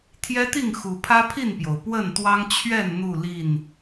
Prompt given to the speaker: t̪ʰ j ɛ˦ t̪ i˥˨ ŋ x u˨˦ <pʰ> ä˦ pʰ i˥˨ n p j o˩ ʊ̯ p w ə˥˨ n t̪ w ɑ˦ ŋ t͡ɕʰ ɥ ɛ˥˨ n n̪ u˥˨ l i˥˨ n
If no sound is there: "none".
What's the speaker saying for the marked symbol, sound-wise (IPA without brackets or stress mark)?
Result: pʰ